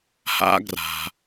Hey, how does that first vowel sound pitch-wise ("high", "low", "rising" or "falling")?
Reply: high